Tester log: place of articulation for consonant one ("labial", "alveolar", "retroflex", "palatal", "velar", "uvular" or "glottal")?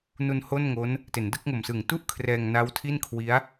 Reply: alveolar